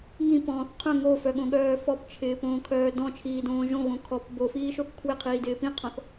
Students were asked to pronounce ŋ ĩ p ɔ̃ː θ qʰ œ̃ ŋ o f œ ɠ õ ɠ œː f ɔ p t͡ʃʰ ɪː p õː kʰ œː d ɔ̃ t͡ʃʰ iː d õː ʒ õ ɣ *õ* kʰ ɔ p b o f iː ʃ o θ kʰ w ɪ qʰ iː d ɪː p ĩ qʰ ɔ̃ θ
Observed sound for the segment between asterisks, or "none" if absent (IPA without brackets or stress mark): õ